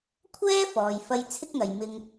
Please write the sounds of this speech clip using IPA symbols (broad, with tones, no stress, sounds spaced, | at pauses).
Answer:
kʷʰ ɛː˥ f ɔː˨ j f ɐ˧ j t͡sʰ ɪ˥ k̚ ŋ ɐ˨ j m ɪ˧ ŋ